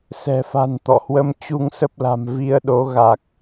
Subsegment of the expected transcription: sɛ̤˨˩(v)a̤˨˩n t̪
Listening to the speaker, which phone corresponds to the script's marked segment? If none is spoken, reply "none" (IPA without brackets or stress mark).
f